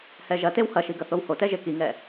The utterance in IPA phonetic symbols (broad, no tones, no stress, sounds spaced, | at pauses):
h ɛ ʒ ɐ t e w h ɐ ʃ i ɡ ɐ θ o w h o t ɛ ʒ e k i ŋ ɛ